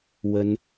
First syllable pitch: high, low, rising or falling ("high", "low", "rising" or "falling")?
high